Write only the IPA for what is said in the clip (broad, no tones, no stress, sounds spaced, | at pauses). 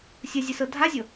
sʲ ɤ zʲ e s ɤ dʱ a zʲ ɤ